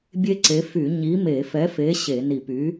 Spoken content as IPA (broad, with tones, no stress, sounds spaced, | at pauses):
bʲ e˦˥ ǀ e˨˥ f y˧˩˧ ɲ i˨˥ m e˧˩˧ f ɛ˨˥ f e˨˥ ɕ e˧˩˧ n i˧˩˧ p y˨˥